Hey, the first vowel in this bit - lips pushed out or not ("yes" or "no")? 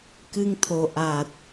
no